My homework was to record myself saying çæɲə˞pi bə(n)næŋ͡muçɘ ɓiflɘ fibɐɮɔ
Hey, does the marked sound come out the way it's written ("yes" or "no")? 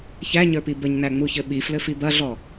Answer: no